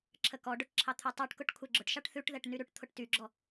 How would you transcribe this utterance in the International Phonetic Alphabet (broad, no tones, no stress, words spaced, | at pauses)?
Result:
ǁʰəkɔɖʊʈ ǁʰɑt̪ʰʉtˤyʈkʊʈ kʷʰɛɡ͡ǁʊʈʃɑʈ θʉʈ ðɛʈnyɾʉʈt̪ʰʊʈ tyɡ͡ǁɔ